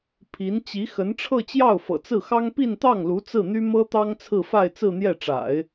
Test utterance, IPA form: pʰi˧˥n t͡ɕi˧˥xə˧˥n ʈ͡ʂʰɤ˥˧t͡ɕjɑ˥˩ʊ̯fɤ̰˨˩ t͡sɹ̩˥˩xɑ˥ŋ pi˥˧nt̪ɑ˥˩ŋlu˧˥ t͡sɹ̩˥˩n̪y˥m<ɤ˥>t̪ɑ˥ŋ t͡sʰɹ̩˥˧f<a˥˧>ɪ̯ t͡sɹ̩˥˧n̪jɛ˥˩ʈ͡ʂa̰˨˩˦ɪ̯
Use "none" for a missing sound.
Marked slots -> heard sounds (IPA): ɤ˥, a˥˧

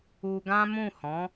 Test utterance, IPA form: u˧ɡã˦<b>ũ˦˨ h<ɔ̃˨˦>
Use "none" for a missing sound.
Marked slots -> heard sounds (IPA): m, ɔ̃˨˦

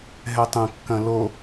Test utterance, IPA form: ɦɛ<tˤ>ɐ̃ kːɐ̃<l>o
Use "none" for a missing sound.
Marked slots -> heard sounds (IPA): tˤ, l

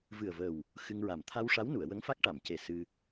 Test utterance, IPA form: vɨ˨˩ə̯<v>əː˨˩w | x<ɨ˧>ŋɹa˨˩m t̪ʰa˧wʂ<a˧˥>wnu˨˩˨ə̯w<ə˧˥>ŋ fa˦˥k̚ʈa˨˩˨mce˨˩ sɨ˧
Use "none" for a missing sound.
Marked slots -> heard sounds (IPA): v, ɨ˧, a˧˥, ə˧˥

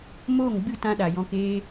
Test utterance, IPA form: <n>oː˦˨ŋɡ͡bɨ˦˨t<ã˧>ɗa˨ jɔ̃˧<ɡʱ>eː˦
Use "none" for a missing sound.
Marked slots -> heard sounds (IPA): m, ã˧, k

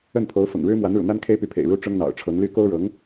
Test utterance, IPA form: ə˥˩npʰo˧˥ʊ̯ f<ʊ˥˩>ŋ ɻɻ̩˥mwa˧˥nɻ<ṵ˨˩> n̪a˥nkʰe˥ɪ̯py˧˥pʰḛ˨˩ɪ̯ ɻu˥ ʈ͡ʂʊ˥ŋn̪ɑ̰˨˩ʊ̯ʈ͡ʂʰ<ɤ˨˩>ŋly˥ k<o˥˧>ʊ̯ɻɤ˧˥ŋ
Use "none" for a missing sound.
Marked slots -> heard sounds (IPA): ʊ̰˨˩, ṵ˨˩, ɤ˧˥, o˥

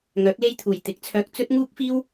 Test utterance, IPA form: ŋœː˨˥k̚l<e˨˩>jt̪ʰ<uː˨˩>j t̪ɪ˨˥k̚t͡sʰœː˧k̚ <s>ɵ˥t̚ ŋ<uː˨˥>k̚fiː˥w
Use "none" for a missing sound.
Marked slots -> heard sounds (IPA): e˥, uː˨˩, t͡s, uː˥

